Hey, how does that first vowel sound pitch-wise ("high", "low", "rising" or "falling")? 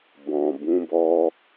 low